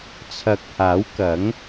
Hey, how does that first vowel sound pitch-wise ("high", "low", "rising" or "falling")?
rising